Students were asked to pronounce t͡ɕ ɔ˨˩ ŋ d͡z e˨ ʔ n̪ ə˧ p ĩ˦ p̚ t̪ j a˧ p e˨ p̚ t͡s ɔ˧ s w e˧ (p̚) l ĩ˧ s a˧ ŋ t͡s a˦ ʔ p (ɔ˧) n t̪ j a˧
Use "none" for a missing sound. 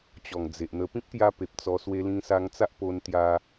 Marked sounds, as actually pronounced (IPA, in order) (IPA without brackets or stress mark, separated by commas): none, o˧